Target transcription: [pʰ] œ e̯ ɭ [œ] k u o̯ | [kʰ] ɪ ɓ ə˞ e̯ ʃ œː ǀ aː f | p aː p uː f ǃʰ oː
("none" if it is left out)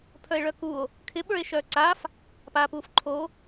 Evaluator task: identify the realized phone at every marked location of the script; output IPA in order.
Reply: pʰ, œ, kʰ

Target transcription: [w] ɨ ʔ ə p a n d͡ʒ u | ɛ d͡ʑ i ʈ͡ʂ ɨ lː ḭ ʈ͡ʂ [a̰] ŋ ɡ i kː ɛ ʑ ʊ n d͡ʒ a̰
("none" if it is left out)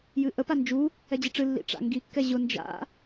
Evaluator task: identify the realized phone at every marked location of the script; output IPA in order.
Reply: j, a̰

